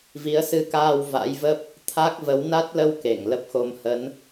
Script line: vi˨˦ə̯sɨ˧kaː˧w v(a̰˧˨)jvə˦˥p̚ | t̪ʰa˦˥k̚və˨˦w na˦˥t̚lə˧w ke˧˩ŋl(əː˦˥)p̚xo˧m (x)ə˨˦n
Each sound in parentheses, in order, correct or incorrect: incorrect: a̰˧˥, incorrect: ə˦˥, incorrect: h

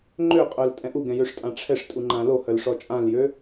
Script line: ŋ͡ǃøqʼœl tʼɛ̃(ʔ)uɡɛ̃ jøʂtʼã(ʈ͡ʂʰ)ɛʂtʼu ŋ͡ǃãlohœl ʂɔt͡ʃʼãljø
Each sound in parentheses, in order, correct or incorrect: correct, correct

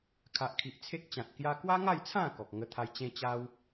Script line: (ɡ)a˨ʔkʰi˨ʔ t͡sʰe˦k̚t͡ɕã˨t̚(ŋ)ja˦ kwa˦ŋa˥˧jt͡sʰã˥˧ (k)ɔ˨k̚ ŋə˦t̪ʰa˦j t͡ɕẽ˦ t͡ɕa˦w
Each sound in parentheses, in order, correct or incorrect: incorrect: kʰ, incorrect: k, correct

